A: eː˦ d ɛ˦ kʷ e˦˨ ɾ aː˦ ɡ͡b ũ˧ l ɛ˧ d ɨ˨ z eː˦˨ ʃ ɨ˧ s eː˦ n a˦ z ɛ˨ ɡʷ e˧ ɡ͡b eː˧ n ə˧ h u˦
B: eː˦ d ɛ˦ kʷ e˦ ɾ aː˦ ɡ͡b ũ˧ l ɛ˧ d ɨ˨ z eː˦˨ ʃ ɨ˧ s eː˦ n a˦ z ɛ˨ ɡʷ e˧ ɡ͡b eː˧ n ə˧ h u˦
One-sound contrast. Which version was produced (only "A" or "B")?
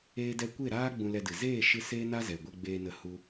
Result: A